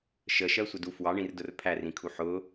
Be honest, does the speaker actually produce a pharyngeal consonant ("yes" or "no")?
yes